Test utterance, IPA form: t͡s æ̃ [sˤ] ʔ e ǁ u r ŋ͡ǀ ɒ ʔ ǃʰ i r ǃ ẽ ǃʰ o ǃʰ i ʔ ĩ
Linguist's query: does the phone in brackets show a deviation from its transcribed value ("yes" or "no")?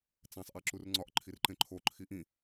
no